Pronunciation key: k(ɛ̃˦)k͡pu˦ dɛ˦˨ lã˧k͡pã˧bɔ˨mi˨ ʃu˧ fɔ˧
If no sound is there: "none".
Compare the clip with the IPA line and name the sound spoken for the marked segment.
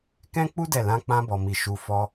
ɛ̃˦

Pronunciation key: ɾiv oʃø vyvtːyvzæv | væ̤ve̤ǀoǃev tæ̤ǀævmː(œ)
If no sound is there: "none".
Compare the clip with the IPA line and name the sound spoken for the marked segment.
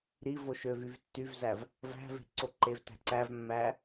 æ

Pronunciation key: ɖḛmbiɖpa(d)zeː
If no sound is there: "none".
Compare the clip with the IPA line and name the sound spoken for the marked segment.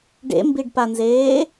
n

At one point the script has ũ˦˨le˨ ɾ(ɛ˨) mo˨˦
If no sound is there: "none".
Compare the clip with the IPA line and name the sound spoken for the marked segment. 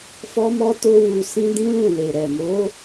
ɛ˨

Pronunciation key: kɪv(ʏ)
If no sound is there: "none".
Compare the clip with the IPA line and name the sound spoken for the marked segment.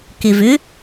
ʏ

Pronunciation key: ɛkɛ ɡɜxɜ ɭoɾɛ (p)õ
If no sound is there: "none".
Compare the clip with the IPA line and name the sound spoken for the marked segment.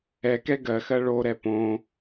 p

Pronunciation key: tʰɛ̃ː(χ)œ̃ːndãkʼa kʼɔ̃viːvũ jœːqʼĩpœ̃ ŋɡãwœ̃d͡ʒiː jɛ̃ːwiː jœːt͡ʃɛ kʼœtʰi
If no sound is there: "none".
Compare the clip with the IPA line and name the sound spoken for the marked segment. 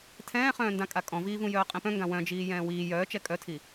χ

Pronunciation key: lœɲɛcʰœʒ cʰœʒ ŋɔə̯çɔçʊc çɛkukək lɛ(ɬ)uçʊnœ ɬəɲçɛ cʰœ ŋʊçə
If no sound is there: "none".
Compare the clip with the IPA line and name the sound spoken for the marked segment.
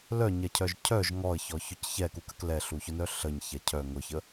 ɬ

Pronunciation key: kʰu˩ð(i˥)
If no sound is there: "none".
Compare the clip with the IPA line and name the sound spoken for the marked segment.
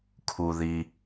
i˩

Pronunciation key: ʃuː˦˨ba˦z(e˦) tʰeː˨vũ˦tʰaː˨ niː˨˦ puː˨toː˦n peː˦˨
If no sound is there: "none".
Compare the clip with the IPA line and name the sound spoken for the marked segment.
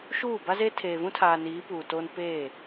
e˦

